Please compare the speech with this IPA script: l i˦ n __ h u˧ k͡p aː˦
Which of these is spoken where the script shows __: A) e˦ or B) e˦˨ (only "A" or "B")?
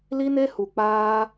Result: A